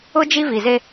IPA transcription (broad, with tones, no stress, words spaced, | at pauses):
ʊ˦ d͡ʒi˦vi˨ze˦